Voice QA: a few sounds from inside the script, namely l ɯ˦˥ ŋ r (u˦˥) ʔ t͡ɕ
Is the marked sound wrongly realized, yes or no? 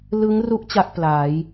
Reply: no